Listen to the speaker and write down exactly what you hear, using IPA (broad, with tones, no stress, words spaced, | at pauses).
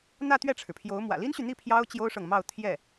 n̪ä˥˧ t̪ɥɛ˥˩ʈ͡ʂʰɻ̩˩pʰjo˧˥ʊ̯ mwä̰˨˩li˥nɕy˨n̪i˥˩ pʰjɑ˥ʊ̯ t͡ɕjo˥ʊ̯ʂɤ˨ŋ mɑ˥˧ʊ̯ t̪ʰjɛ˥˩